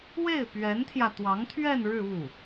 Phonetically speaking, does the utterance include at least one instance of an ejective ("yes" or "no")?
no